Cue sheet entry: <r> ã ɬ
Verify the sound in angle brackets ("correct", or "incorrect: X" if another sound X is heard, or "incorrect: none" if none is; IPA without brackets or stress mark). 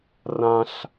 correct